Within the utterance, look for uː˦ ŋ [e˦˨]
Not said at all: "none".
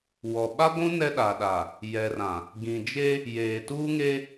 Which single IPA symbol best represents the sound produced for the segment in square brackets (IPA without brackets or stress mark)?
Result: e˦